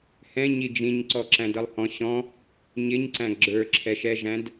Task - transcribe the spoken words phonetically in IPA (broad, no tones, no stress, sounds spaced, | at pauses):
h ɛ̃ ɲ i d͡ʒ ĩ ɲ ǀ ɔ ǁ æ̃ d ʌ lˠ h ɔ̃ ɕ ɔ̃ | ɲ ɪ ɲ ǀ æ̃ ɡ͡ǁ ə˞ ǁʰ ɛ ʃ ɛ ʒ æ̃ d